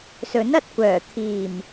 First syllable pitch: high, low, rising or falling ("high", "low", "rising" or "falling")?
rising